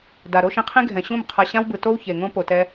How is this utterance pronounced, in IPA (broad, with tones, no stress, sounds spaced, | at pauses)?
d a˨ ɾ o˦ ʃ ĩ˧ qʰ ĩ˦ ɡʱ ɛ̃˨ ɕ ũ˦˨ m qʰ a˧ ɕ ã˦ w b ɯ˨ t o˦ w ç e˨ ŋ õ˦ p o˨ t ɛ˧